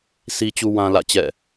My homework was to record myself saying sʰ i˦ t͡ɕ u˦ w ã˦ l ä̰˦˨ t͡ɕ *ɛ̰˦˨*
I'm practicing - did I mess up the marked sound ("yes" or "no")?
no